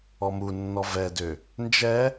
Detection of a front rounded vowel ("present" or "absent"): present